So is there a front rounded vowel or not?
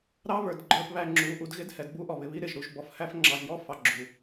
no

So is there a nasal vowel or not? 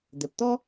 no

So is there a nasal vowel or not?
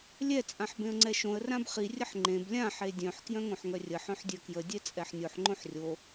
yes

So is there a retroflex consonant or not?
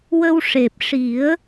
yes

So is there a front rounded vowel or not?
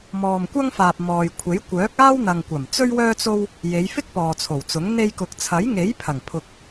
yes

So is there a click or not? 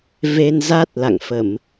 no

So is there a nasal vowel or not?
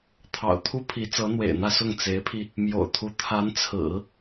no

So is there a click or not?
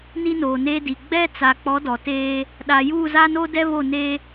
no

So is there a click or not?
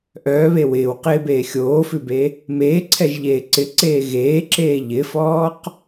yes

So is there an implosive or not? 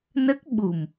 yes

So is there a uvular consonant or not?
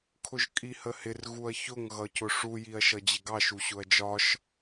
no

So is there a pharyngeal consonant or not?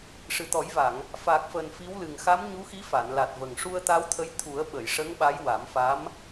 no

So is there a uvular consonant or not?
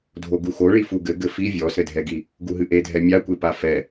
no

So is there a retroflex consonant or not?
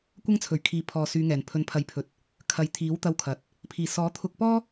no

